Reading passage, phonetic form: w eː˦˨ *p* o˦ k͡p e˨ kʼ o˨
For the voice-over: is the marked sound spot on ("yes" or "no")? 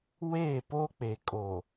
yes